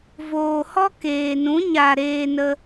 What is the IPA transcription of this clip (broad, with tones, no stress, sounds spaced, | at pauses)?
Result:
v oː˨ h ɔ˦ k eː˨ n ũ˨˦ ɲ a˨ ɾ eː˧ n ə˧